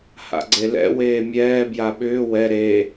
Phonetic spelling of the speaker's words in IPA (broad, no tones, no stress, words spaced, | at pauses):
ha̰ɡ͡ǀelɛ̰weː mʲɛːbja ɓʏː wɛ ɾe